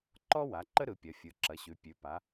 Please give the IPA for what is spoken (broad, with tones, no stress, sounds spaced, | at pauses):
ǃ ɔ˦ w a˩˧ ǃ ə˦ ɾ ɯ˩˧ pʲ ɐ˩˧ fʲ ɯ˩˧ ǁ ɐ˩˧ ɕ ʉ˩˧ pʲ ʉ˩˧ p a˩˧